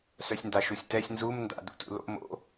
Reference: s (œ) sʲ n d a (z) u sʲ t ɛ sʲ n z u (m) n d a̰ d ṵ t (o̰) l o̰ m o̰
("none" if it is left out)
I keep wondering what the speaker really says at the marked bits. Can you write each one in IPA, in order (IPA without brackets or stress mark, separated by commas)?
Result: œ, ʃ, m, ṵ